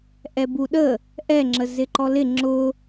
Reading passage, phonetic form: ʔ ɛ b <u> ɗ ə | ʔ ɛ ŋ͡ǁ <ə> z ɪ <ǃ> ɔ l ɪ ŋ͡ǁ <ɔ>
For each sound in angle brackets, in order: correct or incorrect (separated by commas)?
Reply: correct, correct, correct, incorrect